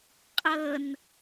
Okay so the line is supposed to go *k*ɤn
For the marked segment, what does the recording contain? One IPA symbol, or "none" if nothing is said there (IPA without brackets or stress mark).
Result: qʼ